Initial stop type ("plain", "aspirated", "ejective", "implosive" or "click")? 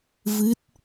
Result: plain